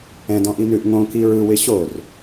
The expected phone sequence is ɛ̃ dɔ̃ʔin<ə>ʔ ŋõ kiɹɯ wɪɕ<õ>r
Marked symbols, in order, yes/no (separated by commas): no, no